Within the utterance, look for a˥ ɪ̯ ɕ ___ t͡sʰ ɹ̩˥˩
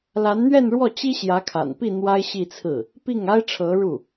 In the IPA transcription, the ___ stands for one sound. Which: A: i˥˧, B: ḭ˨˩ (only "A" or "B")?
A